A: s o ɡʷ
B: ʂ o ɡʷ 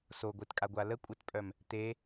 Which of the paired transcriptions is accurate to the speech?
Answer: A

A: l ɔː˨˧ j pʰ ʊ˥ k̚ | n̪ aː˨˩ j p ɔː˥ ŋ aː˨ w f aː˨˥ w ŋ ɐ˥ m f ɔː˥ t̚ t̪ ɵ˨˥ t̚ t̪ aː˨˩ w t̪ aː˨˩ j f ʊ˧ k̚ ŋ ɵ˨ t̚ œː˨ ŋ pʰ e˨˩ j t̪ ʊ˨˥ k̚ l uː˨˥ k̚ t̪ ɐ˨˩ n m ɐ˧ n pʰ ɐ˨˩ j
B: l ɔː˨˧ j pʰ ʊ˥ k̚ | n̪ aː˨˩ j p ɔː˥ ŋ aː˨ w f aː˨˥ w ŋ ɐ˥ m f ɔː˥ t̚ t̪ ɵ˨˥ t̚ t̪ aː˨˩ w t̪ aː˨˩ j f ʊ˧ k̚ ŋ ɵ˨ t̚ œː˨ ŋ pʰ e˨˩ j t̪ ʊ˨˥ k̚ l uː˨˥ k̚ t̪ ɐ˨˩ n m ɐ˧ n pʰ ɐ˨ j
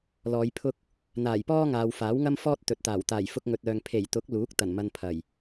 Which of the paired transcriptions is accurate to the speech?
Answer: A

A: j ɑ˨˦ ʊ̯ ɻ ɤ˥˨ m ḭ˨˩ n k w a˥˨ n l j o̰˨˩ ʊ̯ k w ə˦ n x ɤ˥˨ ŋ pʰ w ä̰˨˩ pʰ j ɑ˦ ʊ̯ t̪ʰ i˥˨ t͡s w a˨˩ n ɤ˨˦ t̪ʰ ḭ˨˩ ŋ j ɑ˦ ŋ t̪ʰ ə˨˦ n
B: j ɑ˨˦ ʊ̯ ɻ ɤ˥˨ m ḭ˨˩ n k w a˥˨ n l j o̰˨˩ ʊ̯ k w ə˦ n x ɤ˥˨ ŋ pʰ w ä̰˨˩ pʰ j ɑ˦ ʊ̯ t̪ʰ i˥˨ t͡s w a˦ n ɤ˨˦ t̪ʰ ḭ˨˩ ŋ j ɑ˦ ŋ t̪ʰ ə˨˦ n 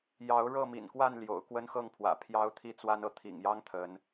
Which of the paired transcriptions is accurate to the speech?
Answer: B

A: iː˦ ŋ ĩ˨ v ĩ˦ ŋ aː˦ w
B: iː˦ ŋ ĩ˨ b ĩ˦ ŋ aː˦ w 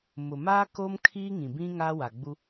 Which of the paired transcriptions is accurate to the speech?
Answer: B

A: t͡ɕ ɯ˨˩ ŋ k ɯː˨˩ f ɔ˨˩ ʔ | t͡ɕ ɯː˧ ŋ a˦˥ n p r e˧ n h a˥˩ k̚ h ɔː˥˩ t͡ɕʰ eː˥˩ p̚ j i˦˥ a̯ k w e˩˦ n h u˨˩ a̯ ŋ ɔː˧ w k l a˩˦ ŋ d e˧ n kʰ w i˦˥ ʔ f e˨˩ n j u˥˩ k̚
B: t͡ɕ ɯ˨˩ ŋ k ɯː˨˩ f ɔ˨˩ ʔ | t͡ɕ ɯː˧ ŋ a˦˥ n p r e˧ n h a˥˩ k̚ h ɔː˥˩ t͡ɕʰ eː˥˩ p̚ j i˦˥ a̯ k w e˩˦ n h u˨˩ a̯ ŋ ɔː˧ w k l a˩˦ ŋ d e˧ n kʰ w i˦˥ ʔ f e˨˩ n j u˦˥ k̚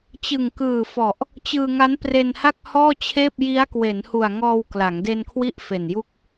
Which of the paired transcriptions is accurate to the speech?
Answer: A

